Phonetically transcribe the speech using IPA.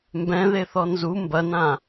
mbɛ̃ðeθɔ nzu mbɐnã

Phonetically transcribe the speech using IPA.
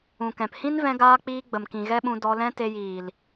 ũ˨kɛ̃˨p hĩ˦nvɛ̃˧ɡaː˧k͡piː˧ ɡ͡bə˨mkĩ˨ɣɛ˦ɓũ˧ dɔ˧lɛ̃˦ te˧jiː˨l

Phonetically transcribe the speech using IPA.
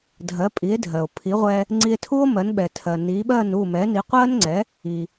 dʱɜ˩˥pʼi˩˥e̯dʱɜ˩o̯pʰi˩˥ ʁʷɛ˧ | ŋ͡ǀi˧e̯tʰu˥o̯mɜ˩˥n ɓɛ˩tʰɜ˩ ni˩˥ɓɜ˥˩nu˥˩ mɛ˩˥ni˩˥qʷɜ˥nŋ͡ǀɛ˩˥ | i˩

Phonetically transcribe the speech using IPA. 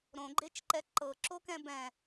ɾõɡ͡ǃet͡ʃǃɛ ǃɤǁokɛ̃ bɛ̃

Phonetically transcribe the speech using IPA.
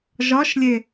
ʒɒʃlʲe

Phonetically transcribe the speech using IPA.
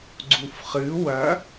ɡ͡ǀufχɨ wɐ

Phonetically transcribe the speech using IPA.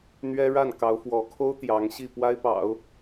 n̪ɥɛ˥ ɻa˥˩nkɑ˧˥ʊ̯fwɔ˧˥kʰo˥ʊ̯ t̪jɑ˧˥ŋɕi˥˩ pwa˥ɪ̯pɑ̰˨˩˦ʊ̯

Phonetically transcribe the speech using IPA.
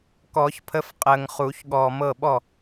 kɔ˨˩˦çpʰə˨˥f qʼəː˨ŋ χuː˨˩˦çɠɔː˨mɤ˥˩ɓɔ˥˩

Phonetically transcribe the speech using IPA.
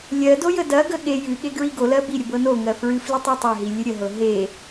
lʲɜdo jədɐɡə ɠe jɨɠe ɡɹiɡolɜ biɾʲə bɤnoŋɜ fɹɨflitˤ ɨtˤeɦi lʲɨɾʲəɦɤ ɦe

